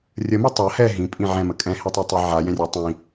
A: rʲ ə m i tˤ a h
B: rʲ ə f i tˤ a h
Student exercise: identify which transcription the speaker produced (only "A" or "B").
A